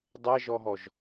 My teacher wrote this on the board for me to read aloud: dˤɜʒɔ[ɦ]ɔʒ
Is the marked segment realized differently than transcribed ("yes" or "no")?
no